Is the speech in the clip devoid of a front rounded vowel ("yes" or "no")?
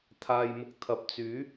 no